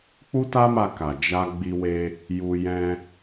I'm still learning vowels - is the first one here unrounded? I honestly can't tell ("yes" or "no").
no